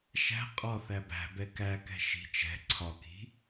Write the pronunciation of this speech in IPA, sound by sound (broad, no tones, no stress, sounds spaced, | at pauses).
ʃ æ̤ qʼ ɒ θ æ b æ̤ b ɛ k æ k ɛ̤ ʃ i̤ t͡ʃ ɛ̤ ǀʰ ɒ k i̤